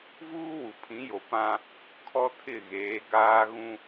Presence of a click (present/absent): absent